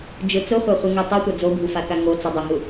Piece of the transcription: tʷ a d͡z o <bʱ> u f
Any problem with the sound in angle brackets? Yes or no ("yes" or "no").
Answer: no